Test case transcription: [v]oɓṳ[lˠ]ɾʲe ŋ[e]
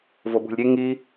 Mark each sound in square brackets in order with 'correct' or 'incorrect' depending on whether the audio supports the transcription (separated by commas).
correct, incorrect, incorrect